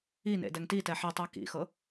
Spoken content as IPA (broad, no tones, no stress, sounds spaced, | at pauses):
i n ḛ d ɛ ŋ t i t ɛ ħ i tˤ ɛ k ḭ x ɤ